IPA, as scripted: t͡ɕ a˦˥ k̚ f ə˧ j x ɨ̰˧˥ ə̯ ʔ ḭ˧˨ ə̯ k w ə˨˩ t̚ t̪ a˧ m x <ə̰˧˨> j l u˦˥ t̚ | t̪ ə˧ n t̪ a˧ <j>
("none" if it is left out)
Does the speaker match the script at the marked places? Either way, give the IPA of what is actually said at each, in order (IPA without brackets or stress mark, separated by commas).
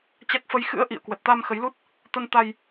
ə˨˦, j